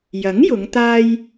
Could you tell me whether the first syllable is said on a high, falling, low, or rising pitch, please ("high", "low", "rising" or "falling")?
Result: rising